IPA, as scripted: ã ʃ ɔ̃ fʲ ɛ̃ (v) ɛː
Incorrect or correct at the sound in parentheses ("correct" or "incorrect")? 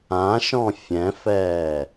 incorrect